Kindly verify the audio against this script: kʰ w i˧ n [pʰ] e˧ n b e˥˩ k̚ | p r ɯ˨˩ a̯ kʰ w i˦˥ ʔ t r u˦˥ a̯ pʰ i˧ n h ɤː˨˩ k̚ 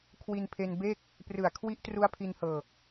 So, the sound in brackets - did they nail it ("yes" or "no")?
yes